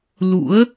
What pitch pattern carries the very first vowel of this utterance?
rising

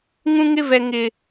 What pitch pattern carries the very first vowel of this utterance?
high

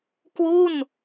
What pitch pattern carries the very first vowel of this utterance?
falling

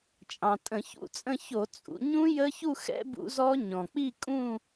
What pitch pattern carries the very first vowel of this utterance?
low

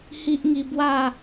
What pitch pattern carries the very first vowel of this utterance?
high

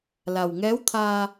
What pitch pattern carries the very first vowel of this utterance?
low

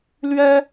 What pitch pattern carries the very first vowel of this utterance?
high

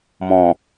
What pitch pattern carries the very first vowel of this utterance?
low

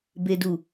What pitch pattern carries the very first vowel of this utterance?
low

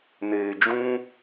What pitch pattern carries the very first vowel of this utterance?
low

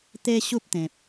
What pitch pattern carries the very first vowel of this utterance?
high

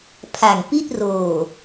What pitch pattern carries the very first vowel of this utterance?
low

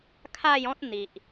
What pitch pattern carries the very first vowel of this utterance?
falling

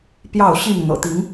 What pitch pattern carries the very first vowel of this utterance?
falling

